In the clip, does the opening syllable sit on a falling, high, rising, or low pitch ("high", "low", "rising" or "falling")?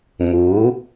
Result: rising